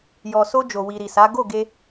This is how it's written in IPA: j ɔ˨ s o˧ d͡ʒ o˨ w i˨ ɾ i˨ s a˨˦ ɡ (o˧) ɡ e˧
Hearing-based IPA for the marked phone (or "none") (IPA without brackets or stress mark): o˦˨